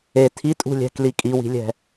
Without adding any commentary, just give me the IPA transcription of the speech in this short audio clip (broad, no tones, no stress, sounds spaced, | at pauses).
e tʰ i tʼ ṳ lʲ ɛ̤ k l i kʼ i w i̤ lʲ ɛ̤